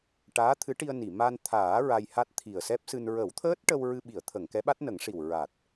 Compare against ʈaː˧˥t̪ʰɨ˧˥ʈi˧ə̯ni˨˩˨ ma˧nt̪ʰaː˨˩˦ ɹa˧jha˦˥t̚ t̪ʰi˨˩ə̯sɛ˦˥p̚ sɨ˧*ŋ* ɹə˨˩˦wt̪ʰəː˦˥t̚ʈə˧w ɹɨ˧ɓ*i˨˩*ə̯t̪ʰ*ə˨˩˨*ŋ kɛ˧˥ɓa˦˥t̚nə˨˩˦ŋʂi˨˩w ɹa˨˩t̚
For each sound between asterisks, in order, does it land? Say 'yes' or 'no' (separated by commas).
no, no, yes